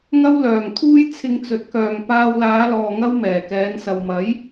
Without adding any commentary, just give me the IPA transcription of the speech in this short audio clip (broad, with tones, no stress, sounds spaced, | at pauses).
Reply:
ŋ ɐ˥ w l œː˨ ŋ t̪ʰ uː˥ j t͡sʰ ɪ˧ ŋ t͡s ɵ˨˥ t̚ k œː˨ ŋ p aː˧ w l aː˨˧ l ɔː˨ ŋ ɐ˥ w m ɛː˨˩ k ɛː˨˧ n s ɐ˨ w m ɐ˨˥ j